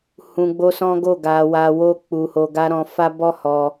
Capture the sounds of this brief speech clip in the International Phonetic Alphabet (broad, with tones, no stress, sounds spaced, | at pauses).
h ũ˧ ɡ͡b o˦ s ɔ̃˦ ɡ o˦˨ ɡ a˧ w a˧ w o˦ k͡p u˧ h o˧ ɡ a˦ ɾ ɔ̃˧ f a˦ b ɔ˦ h ɔ˧